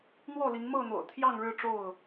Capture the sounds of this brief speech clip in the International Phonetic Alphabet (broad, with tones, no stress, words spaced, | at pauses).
n̪wɔ˥˨li˨˦ŋ mɤ˥˨n̪o̰˨˩ʊ̯ t̪ʰjɑ˥˨ŋɻɻ̩˥˨ʈ͡ʂo˥˨ʊ̯